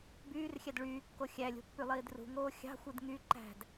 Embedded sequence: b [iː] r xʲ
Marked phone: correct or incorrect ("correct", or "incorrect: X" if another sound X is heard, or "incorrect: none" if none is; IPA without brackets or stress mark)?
incorrect: yː